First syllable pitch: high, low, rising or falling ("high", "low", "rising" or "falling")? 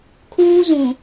high